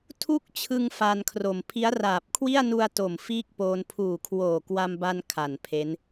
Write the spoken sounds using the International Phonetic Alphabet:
tʰu˥˩k̚t͡ɕʰɯ˧ŋ fa˧nkʰro˨˩m pʰi˦˥a̯raː˨˩p̚kʰwi˥˩a̯ nu˧a̯ to˨˩mfiː˥˩k̚poː˧n pʰuː˨˩kʰwoː˨˩kwa˧mba˧n kʰa˨˩npʰe˦˥n

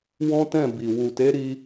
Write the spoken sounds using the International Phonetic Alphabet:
wɔ̃˦tɛ̃˦˨ bi˨ wu˨te˨˦ɾi˧

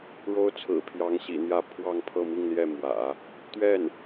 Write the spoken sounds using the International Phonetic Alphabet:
ɻo˥ʊ̯ t͡sʰɹ̩˨˩pʰjɑ˧˥ŋɕḭ˨˩n̪jä˥˧ pʰwɑ˥˧ŋpʰɤ˥˧mi˥˧ŋljɛ˥˩ mwä̰˨˩˦ | t̪ɥɛ˥˩n

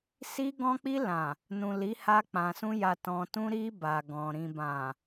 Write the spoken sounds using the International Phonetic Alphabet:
si˧ɡɔ̃˧k͡pi˧ lã˨ | nũ˨li˨˦ ha˧k͡pã˨sũ˧ ja˨tɔ̃˨tũ˧ɾi˧ ba˨ɡɔ̃˨ ɾĩ˨bã˨

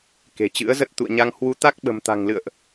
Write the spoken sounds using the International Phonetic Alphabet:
ke̤˨˩t͡ɕɨ̰˧˥ə̯zə˦˥t̚ t̪ṵ˧˨ə̯ɲa˧ŋ hwu˨˦t̪a˦˥k̚ ɓə̤˨˩mt̪a̤˨˩ŋlɨ̰˧˨ə̯ʔ

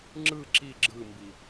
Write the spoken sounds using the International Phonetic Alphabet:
ŋ͡ǁɯ ǁi ɡ͡ǁɯmbi

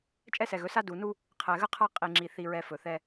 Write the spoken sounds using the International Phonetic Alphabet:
t͡ʃʼɛ˦sɛ˨ɣɵ˨˦sa˦ du˨nu˦ | qʰɛ˨ɣə˦qʰa˦ qʼi˨ŋ͡ǁi˨ θi˨ɹɛ˨ fɵ˨θɛ˦

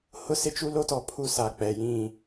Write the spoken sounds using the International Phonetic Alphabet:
hʊ˦sɪ˦t͡ʃu˦ lo˦tɔ˨pʰu˦sa˨ k͡pɛ˨jĩ˦˨

